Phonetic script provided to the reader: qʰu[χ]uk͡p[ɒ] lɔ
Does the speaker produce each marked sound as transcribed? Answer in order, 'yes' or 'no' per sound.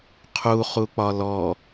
yes, yes

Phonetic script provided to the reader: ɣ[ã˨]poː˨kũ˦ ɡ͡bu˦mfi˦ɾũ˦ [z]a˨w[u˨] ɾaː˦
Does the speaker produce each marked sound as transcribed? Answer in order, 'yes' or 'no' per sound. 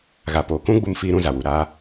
no, yes, yes

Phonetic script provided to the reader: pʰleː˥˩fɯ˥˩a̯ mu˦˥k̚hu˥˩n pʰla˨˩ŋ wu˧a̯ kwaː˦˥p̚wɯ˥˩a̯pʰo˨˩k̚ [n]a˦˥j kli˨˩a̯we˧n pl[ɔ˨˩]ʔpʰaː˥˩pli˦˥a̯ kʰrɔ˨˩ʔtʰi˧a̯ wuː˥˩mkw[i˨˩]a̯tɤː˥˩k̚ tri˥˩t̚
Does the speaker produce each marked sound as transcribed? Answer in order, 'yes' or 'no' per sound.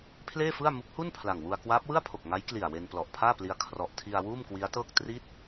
no, yes, no

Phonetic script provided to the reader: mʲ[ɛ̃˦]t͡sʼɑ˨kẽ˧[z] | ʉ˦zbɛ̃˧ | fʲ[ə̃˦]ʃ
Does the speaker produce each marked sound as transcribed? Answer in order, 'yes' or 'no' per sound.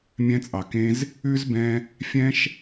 no, yes, no

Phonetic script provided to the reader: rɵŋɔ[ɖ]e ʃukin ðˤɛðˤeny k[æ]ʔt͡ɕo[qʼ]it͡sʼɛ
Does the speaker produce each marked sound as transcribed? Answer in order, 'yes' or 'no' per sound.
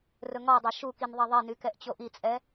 no, no, no

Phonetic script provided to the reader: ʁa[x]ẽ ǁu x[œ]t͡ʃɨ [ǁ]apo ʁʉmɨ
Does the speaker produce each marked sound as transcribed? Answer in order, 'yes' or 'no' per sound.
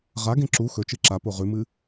no, no, yes

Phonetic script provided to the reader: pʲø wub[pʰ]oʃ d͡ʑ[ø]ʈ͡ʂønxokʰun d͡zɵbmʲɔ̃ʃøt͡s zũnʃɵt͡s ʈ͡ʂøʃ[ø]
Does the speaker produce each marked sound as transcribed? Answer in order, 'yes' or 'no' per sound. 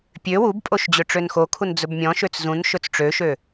no, yes, yes

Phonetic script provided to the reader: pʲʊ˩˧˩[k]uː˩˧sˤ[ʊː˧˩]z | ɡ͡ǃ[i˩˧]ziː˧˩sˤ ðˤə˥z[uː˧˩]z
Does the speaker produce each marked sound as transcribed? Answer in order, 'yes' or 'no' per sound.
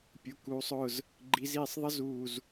yes, yes, yes, yes

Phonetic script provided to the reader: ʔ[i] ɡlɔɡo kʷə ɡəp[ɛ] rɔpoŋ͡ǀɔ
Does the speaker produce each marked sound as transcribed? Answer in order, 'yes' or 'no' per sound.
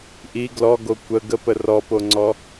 yes, no

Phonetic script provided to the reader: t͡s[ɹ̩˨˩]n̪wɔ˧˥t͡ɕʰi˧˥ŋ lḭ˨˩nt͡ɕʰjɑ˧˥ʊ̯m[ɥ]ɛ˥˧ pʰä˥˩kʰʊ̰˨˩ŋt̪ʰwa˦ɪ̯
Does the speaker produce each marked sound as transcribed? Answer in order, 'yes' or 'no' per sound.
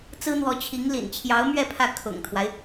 no, yes

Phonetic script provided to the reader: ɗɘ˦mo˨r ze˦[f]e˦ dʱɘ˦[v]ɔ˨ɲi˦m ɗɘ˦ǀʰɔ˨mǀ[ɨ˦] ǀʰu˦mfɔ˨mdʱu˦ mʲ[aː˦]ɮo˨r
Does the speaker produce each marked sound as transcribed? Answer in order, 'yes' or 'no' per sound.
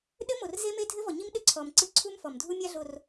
no, yes, yes, no

